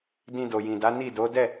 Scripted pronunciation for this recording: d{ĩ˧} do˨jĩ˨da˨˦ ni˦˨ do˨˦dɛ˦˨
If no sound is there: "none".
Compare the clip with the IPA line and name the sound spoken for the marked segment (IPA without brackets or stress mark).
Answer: ĩ˧